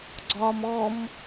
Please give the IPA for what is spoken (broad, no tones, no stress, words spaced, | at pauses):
ɡ͡ǀɒm ɔm